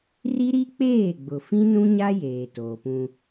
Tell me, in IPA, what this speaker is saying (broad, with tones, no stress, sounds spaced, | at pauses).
r i˦ ɾ i˦ k͡p eː˦˨ ɡ͡b ʊ˨ f ĩ˦ n ũ˦ ɲ a˦ j eː˨ t oː˨ p ũ˦